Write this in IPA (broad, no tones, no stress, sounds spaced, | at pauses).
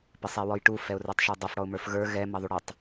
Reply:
p ɪ sˤ ɛ w ɔ j ʈ u f ɛ ʊ̯ r ə˞ tˤ ʃ ə˞ dˤ ʌ f ɽ ɔ ʊ̯ m ə˞ f ɣ ə˞ ɣ ɛ m ʌ ðˤ u ɽ ɪ tˤ